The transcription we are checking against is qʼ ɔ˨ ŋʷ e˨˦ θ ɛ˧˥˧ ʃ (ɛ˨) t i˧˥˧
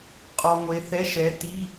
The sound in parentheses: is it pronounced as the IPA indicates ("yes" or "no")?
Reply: no